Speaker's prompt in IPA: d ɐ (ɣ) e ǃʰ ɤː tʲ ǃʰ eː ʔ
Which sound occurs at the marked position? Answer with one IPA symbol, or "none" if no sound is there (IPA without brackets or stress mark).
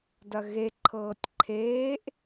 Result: ɣ